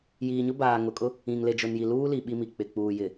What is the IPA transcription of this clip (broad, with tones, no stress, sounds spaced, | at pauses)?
j iː˨ ɲ ʊ˦ b aː˨ ŋ ʊ˨ kʼ ʊ˦ | ĩ˨ ŋ l e˨ d͡ʒ ʊ˨ n j i˨ l uː˦ l i˨ ɓ i˦ m i˨ k͡p ɪ˨ k͡p uː˨ j ɪ˨